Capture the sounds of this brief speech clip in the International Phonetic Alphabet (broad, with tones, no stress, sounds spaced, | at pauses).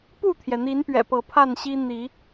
p u˥˨ t̪ʰ j ɛ˩ n̪ i˨˦ n p ɥ ɛ̰˨˩ p ɤ˨˦ pʰ a˥˨ n ɕ i˦ n̪ i˨˦